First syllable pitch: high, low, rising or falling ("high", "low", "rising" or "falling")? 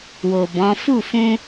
low